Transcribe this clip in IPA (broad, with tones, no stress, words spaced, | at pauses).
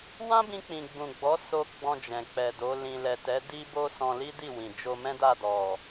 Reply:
wã˦bĩ˧k͡pĩ˨ ɡ͡bũ˨ɡ͡bɔ˨˦ so˧ ɡ͡bɔ̃˧d͡ʒɛ̃˨k͡pɛ˨do˨˦ lĩ˧ lɛ˨tɛ˨˦ di˦bo˦ sɔ̃˧li˦di˦˨wĩ˨ d͡ʒo˧mɛ̃˦da˦˨dɔ˨